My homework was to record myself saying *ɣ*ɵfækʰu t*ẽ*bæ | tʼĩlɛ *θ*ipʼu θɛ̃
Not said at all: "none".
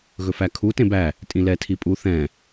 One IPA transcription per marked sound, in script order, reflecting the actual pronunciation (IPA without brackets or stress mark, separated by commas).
ɣ, ẽ, tʰ